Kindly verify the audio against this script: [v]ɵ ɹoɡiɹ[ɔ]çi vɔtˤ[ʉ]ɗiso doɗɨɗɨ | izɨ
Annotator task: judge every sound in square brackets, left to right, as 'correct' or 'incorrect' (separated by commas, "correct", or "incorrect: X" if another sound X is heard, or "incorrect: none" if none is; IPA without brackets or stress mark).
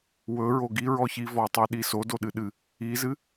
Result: incorrect: w, correct, correct